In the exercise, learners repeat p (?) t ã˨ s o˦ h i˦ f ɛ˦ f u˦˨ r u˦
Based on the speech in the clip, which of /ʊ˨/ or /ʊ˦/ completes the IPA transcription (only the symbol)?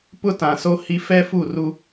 ʊ˦